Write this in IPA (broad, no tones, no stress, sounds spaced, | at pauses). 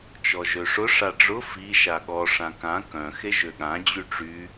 t͡ʃ ɔ ʒ ø ʂ ʊ ʂ a ɖ͡ʐ ʊ f i ʃ a ɠ ɔ ʂ ã k ã k œ̃ x e ʒ ø ɠ ã d͡ʑ y ʈ͡ʂ y